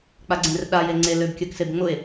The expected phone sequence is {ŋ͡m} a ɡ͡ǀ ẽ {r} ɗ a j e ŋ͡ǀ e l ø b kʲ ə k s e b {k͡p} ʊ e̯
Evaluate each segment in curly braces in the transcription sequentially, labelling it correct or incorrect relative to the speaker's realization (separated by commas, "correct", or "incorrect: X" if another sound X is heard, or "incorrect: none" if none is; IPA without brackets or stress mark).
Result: incorrect: k͡p, correct, incorrect: ŋ͡m